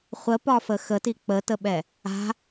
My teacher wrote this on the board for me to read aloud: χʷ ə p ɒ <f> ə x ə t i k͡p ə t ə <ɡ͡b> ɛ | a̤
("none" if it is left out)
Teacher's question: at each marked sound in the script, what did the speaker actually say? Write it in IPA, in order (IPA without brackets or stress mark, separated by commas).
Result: f, ɓ